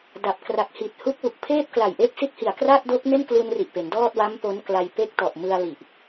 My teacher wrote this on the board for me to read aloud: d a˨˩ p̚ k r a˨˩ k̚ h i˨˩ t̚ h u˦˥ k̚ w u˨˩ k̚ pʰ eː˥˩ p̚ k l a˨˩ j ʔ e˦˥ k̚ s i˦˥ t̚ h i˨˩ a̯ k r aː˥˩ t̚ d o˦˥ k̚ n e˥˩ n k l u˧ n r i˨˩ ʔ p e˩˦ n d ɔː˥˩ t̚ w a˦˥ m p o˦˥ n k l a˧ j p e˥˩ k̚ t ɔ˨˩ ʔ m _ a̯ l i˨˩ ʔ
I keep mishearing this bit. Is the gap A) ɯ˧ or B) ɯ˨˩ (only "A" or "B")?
A